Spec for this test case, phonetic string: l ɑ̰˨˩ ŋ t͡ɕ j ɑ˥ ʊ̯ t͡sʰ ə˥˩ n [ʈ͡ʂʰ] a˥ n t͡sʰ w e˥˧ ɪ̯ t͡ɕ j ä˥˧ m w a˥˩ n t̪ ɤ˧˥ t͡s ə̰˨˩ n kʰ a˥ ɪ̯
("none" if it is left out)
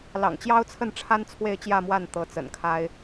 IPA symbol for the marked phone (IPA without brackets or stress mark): ʈ͡ʂʰ